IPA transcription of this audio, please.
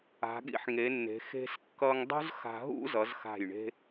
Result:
a̤˩˧ ɠ ḭ˥˧ ħ ŋ e˩˧ nː e̤˩˧ x e̤˧ s kː ʌ˧ ŋ dˤ ṳ˥ z x a̤˧ ɦ ṵ˥ z ʌ˩˧ z x a̤˧˩ j ɳ e̤˥

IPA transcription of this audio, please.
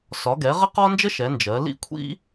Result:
s ɒ˨˥ ɡ ɛ˨˥ ʁ ə˥ q ɒ˥ n d͡ʒ ə˥ ʃ ɛ˨˥ n d͡ʒ ɜ˨˥ l ḭ˥ kʷʰ ḭ˥

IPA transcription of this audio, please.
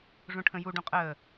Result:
ʐ ũ ʈʰ ə̃ j u ɖ ũ qʼ əː

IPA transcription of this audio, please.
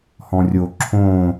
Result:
h ɔ̃ rʲ o ǁʰ õ

